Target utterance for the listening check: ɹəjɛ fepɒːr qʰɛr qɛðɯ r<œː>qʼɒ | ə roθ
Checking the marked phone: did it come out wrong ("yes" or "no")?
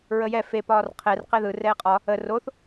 yes